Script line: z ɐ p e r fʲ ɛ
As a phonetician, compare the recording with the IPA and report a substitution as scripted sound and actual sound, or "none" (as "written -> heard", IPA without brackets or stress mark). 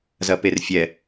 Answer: none